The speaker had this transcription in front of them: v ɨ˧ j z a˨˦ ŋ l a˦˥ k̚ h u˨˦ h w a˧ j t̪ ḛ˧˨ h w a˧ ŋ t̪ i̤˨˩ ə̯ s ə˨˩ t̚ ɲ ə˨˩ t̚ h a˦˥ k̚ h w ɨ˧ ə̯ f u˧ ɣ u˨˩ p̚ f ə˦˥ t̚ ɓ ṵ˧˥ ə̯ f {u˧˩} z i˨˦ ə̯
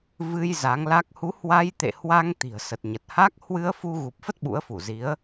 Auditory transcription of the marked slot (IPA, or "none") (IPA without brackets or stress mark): u˧˩